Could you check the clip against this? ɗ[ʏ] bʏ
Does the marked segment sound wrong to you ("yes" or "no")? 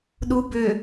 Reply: yes